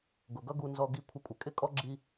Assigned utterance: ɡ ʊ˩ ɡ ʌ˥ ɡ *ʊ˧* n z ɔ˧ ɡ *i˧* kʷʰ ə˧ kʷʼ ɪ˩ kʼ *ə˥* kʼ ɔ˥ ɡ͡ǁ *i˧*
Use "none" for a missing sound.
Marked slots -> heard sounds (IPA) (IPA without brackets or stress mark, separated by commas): u˧, i˧, ɪ˥, i˧